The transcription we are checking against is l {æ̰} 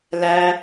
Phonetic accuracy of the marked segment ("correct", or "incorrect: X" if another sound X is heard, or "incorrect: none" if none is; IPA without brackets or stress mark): incorrect: æ